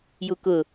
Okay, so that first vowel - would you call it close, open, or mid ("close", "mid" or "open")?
close